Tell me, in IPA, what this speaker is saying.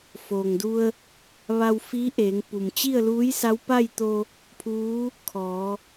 foː˩ŋdu˧ə̯ | ʋa˧w fiː˧˥ʔeː˩˧ŋpu˩m t͡ɕi˥˨ə̯luː˧˥jsa˧˥w pa˥˨jt̪o˧ | pʰuː˧˥ | kʰɔː˩˧

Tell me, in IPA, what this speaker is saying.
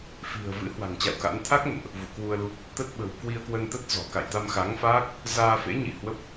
fi̤˨˩ə̯vɨ̰˧˥ hwa̤˨˩ŋt͡ɕa̰˧˨wka̰˧˥n t̪ʰa˦˥k̚nə̰˧˨nʔ | vṵ˧˨kwu˧ə̯lu˦˥p̚ | t̪ə˦˥t̚ɓə̤˨˩w kwi˧ə̯kwə˧nt̪ə˦˥t̚ zɔ̤˨˩ ka̰˧˨jt̪a˧mxa˨˦ŋfaː˦˥k̚ | zaː˧ fḛ˧˥ɲḭ˧˨hwə˦˥p̚

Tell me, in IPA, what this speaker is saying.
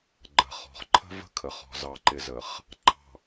ɡ͡ǃə̤˨χɔ̤˨χ ǃʰə̤˦və̤˦kʰə˨χɔ̤˨ zɑ˨ǃɪ˨zə˨χ | ǃɑ̤˨

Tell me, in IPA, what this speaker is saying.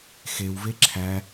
xewve ǁʰæ

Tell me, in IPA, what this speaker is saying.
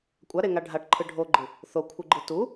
kʷʼaɾeŋa ɖʱaʈǃʰɯ ɖʱoɡ͡ǃɨ | θokʷʰɯɡ͡ǃɨ tu

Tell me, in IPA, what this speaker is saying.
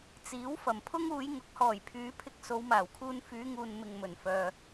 t͡siː˨˥w fɐ˨˩mpʰʊ˥ŋuː˨˧j ŋʊ˨˥k̚hɔː˨˩jpʰyː˨˧pʰɪ˧k̚ so˨˧wmaː˨˩wkʰuː˧n fyː˨˧ŋuː˨n mɪ˨ŋ mɵ˨˩nfœː˨

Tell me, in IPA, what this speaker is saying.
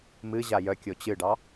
mɨ ʑajœ kʲot͡ɕɨɖɑ

